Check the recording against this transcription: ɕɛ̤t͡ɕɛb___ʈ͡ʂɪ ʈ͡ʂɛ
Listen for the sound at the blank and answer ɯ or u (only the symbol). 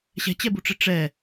u